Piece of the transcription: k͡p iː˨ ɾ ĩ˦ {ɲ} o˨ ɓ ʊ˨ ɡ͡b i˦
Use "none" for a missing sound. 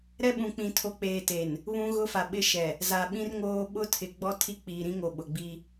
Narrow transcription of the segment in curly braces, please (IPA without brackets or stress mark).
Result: ŋ